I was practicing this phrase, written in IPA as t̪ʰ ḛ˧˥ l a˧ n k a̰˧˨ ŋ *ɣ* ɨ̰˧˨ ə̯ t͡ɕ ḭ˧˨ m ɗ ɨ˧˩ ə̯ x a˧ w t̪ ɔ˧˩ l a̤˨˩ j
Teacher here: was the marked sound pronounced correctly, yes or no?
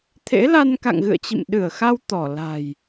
yes